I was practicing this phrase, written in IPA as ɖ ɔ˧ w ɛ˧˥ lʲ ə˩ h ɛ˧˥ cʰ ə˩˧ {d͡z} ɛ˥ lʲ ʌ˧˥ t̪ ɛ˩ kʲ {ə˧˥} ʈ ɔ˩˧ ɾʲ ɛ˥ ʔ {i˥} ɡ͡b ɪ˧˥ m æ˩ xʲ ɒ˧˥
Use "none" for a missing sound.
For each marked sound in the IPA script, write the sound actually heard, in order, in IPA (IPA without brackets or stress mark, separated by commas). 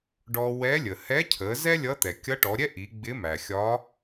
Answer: z, ʌ˧˥, i˩˧